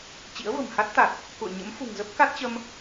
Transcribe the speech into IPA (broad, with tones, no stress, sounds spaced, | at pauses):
t͡ɕ ḭ˧˥ ə̯ v ə̤˨˩ m h a˦˥ t̚ t̪ a˨˩ t̚ | k ṵ˧˨ ə̯ ɲ ə̰˧˥ m f ṳ˨˩ ŋ z ə˦˥ p̚ k a˦˥ t̚ t͡ɕ ə˧ m